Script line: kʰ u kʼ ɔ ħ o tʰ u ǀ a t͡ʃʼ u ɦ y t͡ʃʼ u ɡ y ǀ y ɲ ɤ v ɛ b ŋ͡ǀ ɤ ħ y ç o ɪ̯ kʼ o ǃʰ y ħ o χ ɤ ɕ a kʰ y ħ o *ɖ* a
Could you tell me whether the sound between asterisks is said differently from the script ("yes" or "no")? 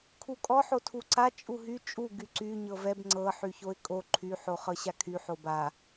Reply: yes